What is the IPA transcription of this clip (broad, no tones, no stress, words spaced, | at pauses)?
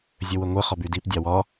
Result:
zʲəwəŋʷə χɒbydip dʲɑwɒ